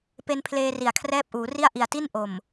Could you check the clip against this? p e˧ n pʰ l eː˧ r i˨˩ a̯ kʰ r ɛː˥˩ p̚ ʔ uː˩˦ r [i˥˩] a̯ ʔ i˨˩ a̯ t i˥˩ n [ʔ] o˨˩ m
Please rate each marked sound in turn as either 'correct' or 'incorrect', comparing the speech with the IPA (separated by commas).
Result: correct, correct